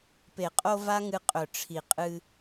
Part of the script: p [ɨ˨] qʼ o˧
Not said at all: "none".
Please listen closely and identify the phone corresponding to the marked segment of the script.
e˨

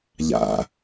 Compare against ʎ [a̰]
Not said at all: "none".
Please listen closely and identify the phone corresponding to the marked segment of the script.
a̰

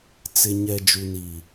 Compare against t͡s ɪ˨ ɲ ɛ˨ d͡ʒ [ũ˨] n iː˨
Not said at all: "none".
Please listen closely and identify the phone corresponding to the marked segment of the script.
u˨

